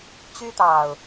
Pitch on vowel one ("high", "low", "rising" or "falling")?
high